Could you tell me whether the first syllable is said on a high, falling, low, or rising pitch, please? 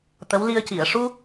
rising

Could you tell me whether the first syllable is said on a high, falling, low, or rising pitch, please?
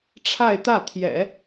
falling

